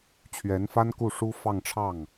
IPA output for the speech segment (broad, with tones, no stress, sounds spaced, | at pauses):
t͡ɕʰ ɥ ɛ˧˥ n f a˥ n k u˥˩ ʂ u˥ f ɑ˥˧ ŋ ʈ͡ʂʰ ɑ˥˩ ŋ